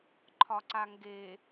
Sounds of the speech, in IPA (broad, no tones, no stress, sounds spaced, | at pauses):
ǃʰ ɒ ǀ a ŋ ɡ e